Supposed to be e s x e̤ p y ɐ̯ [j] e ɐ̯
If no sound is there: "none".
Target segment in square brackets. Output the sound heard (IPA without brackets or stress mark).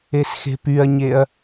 ɲ